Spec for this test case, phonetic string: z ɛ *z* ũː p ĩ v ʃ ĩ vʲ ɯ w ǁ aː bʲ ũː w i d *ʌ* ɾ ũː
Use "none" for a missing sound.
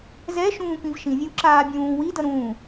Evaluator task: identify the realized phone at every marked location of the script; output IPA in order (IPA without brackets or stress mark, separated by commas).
ʃ, ʌ